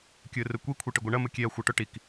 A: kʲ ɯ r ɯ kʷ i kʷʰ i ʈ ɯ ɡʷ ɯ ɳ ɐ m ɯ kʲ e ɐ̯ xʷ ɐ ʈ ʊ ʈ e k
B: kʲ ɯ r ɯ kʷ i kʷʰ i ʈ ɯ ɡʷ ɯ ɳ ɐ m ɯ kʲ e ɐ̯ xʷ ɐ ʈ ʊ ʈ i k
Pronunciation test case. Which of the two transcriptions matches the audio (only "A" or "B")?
B